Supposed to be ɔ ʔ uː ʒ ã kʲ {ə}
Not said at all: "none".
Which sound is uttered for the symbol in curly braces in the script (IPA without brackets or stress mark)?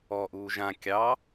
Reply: ɑ